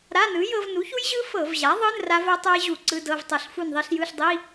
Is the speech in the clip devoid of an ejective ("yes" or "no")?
yes